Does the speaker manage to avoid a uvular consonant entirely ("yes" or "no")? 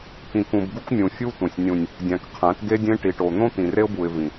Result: no